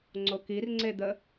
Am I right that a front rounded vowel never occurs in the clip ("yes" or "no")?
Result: yes